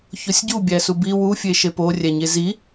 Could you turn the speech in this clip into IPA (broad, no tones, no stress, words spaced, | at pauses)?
çosʲɟu bʲæsubi wu fʲeʃepo rʲæɲezi